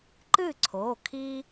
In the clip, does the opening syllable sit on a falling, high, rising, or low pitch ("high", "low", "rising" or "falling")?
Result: falling